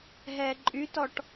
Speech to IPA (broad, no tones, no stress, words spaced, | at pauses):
ɦɛːǃʼytɔʈ